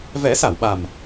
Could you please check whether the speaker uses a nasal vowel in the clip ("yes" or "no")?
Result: no